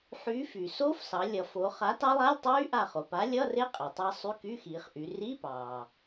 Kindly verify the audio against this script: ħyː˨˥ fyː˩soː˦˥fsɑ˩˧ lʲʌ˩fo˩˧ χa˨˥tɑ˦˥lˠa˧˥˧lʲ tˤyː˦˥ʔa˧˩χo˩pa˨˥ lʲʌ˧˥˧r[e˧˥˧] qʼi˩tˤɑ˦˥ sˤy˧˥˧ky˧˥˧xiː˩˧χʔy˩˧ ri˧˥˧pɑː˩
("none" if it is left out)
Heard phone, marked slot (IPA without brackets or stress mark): e˦˥